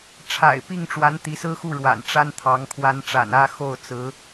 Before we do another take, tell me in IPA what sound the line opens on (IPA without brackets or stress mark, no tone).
ʈ͡ʂʰ